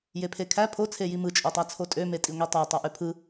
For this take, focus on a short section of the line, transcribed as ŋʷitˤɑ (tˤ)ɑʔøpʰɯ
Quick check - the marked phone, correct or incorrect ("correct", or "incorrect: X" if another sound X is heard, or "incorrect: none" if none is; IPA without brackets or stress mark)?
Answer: correct